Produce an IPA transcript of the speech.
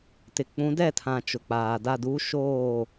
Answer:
tɪ˨k͡pũ˨˦ dɛ˦˨tʰã˨ t͡ʃʊ˨k͡paː˨ da˦˨du˦ ʃoː˦˨

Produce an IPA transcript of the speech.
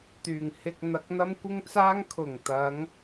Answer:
t̪yː˨˩ŋhɪ˧k̚ n̪ɐ˨˥k̚n̪ɐ˥mkʷɪ˥ŋt͡saː˥ŋ kʰʊ˨˩ŋt̪ɐ˨˧ŋ

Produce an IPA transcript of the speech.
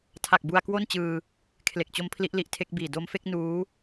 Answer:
tʰa˨˩k̚ bu˧a̯kwo˥˩n t͡ɕɯː˧ | kʰle˨˩k̚t͡ɕo˦˥m pʰli˦˥ʔli˦˥ʔtʰe˦˥k̚biː˨˩ do˧mfe˥˩k̚ nuː˦˥

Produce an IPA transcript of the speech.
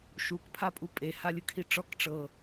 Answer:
ʃukpʰapʼu pʼehalʲɯkʰi ʈ͡ʂɔk ʈ͡ʂɤ

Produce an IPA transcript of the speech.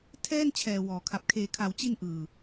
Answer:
tʰɛː˥˩n t͡ɕʰɛː˨˩wɔː˩˦kʰa˨˩p̚ kʰeː˩˦kʰa˩˦wt͡ɕi˧n ʔɯː˧

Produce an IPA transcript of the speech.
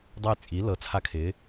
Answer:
dˤɤ˦˨jt͡sʼi˩˥ lɤ˩˥t͡sʰa˦˨kʰɪ˩˥

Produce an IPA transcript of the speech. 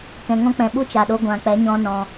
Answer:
kɛ̃˨ŋɔ̃˦k͡pɛ̃˨ ɓu˦t͡ʃa˨ɗo˧ ɡʷã˨k͡pɛ˨˦ɲɔ̃˧ nɔ̃˧

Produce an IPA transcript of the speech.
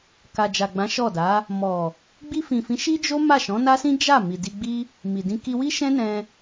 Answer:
ka˨d͡ʒa˨ɡ͡bã˨˦ ʃɔ˦˨ da˨˦ | mɔ˨ | ɡ͡bi˧fĩ˨fĩ˨˦ ʃi˦d͡ʒo˦ ma˦˨ʃɔ̃˨˦na˦sĩ˦ d͡ʒa˦˨ mi˨di˧ɡ͡bi˦ | mi˨dĩ˧ ki˧wi˦ʃɛ̃˦nɛ̃˧

